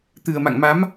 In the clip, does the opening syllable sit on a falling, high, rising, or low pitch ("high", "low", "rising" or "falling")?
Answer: low